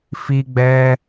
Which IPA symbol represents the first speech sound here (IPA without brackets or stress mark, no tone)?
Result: f